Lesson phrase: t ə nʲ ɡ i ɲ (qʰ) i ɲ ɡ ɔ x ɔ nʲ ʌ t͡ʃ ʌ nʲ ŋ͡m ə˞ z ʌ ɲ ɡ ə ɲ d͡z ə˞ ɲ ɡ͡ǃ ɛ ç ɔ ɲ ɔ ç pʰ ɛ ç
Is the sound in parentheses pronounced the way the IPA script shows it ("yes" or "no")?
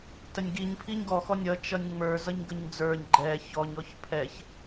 no